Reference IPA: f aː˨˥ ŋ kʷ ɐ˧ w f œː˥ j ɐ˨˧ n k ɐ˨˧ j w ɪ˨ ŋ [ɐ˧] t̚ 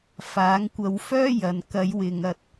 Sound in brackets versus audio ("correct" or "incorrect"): correct